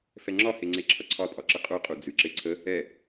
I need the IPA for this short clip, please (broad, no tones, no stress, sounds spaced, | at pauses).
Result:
f ɛ ŋ͡ǁ ɒ h e ŋ͡ǀ e ǁʰ ʌ ǀʰ ɒ tʼ ɒ ǁ ə qʼ u qʼ u d͡z ɨ ǁ e ǀʰ ə | ɛ